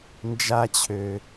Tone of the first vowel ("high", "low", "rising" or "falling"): high